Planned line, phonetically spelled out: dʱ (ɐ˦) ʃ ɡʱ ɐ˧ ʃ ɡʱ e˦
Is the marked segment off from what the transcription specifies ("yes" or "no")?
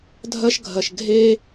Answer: no